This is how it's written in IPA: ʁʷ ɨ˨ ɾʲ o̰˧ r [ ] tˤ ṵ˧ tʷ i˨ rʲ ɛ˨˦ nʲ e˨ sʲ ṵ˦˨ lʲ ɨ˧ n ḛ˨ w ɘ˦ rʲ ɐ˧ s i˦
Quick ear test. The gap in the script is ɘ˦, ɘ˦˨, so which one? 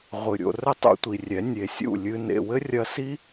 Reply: ɘ˦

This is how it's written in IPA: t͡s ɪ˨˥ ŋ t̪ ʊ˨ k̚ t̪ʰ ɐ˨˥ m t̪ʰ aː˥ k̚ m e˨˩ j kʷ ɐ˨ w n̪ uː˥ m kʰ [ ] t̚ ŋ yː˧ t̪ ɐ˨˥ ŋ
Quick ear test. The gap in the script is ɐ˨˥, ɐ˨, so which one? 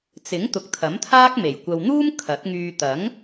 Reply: ɐ˨˥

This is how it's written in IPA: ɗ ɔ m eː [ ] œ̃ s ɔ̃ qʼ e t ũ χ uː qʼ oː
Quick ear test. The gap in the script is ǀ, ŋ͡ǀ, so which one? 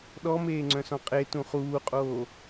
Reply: ŋ͡ǀ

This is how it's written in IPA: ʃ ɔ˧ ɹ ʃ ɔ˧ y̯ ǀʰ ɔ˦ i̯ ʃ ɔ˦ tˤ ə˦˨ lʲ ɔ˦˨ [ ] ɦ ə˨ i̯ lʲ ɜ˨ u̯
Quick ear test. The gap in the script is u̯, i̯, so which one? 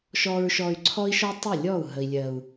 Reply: u̯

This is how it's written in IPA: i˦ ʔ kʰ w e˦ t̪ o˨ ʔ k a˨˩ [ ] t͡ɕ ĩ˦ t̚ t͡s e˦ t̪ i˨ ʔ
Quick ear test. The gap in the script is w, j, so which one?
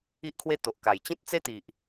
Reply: j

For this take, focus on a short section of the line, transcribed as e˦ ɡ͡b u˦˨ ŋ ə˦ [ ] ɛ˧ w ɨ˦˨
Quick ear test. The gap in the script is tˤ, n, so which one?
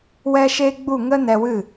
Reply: n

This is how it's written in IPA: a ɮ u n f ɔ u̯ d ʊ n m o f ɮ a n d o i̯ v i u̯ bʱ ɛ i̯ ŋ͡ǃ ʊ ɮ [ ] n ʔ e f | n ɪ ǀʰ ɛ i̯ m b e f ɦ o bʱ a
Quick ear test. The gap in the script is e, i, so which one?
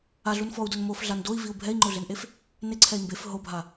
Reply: e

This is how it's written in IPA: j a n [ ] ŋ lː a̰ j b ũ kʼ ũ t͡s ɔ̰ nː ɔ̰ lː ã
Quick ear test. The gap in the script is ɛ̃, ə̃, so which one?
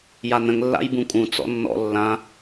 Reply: ə̃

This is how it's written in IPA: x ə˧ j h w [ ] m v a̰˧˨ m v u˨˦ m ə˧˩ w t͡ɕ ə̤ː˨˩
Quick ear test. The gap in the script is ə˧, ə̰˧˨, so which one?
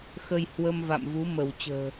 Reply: ə˧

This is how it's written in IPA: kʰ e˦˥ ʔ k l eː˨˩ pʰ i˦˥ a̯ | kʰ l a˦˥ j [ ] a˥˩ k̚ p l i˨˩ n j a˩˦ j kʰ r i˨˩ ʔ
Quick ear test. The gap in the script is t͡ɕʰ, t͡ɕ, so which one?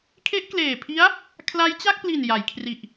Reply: t͡ɕ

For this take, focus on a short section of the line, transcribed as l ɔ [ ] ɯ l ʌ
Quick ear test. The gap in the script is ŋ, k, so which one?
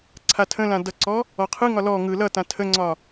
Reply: ŋ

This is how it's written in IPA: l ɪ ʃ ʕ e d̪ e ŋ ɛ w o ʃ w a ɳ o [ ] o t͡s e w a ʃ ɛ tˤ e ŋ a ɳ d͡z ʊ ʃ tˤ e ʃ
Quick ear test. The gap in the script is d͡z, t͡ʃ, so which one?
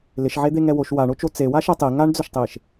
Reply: t͡ʃ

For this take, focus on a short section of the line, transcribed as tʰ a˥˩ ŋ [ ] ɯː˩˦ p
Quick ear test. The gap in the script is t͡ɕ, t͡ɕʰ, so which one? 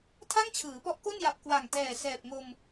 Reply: t͡ɕʰ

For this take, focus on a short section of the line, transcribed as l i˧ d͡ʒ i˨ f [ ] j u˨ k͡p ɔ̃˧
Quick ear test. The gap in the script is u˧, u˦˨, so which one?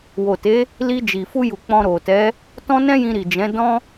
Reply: u˧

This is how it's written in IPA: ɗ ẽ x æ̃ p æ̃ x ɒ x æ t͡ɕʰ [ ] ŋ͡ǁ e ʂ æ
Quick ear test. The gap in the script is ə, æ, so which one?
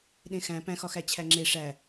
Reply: æ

